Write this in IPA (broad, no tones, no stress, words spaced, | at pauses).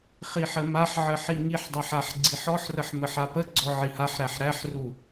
χiħəmaħʕə ħiŋiħdˤaħ aħɡ͡ǀiħɔħrəħ məħapəɡ͡ǀɔ ʕihaħɾæħ ɾæħru